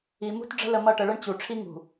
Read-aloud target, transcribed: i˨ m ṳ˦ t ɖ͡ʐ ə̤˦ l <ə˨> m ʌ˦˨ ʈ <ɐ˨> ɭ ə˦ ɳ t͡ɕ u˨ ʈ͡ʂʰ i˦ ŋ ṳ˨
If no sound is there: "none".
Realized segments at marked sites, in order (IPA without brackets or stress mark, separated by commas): ə˨, ə˨